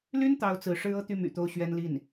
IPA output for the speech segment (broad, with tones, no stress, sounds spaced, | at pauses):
l y˥ n t̪ ɑ˥ ʊ̯ t͡s ɹ̩˧˥ ʂ ɻ̩˥ ɤ˥ t̪ y˥˩ m y̰˨˩ t̪ o˧˥ ʊ̯ ɕ ɥ ɛ˥ n l i˥˩ n